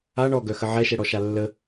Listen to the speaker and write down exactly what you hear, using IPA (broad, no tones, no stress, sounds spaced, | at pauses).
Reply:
a ɳ ɔ ɡ œ x ə ʕ ɛ ʃ ɛ ɽ ɔ ʃ a lː ə